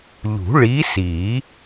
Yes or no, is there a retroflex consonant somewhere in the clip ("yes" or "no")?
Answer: yes